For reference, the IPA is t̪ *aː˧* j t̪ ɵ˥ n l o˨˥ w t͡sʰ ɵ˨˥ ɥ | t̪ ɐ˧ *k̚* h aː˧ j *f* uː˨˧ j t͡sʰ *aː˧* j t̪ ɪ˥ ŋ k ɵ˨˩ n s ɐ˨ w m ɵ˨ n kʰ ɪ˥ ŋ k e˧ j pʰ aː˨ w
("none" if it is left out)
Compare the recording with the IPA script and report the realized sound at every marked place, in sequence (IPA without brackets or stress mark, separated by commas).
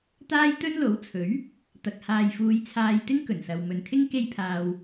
aː˥, k̚, f, aː˧